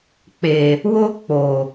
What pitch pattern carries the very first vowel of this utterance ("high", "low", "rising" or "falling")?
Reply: low